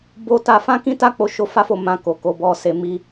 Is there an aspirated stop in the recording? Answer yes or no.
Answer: no